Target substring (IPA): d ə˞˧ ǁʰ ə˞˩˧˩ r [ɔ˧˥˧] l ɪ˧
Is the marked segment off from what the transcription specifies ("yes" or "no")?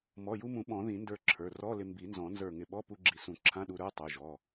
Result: no